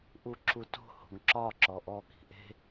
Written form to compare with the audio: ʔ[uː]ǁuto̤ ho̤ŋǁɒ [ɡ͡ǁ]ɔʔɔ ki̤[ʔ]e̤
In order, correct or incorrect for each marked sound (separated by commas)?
incorrect, incorrect, correct